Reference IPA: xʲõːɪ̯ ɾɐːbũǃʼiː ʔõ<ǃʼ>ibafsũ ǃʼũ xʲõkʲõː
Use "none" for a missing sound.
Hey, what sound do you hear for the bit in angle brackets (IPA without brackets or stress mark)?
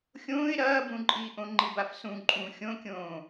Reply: ŋ͡ǃ